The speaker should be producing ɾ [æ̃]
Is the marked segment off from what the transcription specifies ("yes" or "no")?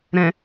yes